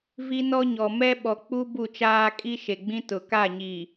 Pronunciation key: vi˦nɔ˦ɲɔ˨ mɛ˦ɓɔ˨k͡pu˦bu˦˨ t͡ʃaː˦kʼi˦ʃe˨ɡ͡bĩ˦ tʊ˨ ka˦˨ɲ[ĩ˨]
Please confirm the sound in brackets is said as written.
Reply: no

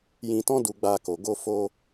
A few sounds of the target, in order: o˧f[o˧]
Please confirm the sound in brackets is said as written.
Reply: yes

